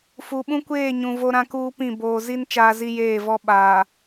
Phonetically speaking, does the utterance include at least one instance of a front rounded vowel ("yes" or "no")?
no